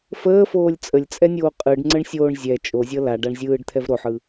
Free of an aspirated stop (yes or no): no